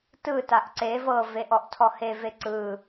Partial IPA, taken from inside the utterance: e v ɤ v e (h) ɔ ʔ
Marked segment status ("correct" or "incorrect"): incorrect